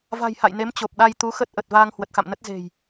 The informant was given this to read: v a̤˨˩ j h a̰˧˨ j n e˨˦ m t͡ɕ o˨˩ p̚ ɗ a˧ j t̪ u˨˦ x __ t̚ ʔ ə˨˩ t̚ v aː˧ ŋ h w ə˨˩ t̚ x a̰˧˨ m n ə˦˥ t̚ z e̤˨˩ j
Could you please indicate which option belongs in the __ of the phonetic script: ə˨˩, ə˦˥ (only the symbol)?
ə˦˥